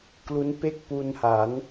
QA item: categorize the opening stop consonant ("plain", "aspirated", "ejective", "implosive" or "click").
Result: plain